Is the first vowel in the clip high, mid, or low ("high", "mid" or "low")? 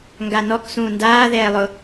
low